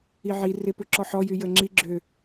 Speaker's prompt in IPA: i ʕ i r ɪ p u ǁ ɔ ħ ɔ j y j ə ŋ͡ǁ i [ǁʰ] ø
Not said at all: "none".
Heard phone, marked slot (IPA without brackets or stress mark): ɡ͡ǁ